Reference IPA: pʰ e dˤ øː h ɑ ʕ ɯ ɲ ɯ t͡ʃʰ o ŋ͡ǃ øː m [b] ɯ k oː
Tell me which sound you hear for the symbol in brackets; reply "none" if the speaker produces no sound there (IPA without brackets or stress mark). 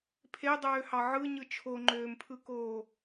pʰ